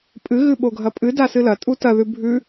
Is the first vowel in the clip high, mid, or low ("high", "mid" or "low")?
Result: high